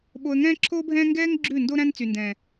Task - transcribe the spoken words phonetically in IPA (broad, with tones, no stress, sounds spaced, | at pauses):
ɓ o˧ ə̯ ŋ ɛ̃ː˦ ǁʰ oː˦ bʱ ɛ̃ː˦ ŋ ɡ ɛː˦ ŋ ɡ͡ǁ ʉ˦˨ n d o˦ ɾ æ̃˦ n t͡s y˨ n d ɛ̃ː˨